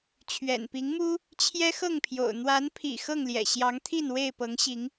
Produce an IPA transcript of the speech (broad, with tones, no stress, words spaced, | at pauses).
t͡ɕʰɥɛ̰˨˩npi˨˦ŋmu˦ | t͡ɕʰjɛ˦xɤ˥˨ŋpʰjo̰˨˩ʊ̯ n̪wa˨˦npʰḭ˨˩ xɤ˥˨ŋljɛ̰˨˩ɕjɑ˨˦ŋt̪ʰi˥˨n we˥˨ɪ̯pɤ˨˦ŋɕi˨˦ŋ